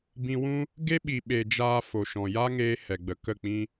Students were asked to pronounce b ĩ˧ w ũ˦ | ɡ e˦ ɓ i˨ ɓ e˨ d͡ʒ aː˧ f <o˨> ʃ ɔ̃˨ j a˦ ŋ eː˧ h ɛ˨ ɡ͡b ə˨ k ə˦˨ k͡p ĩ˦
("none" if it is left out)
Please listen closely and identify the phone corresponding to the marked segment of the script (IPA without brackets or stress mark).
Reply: o˨